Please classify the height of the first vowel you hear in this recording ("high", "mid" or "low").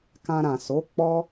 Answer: low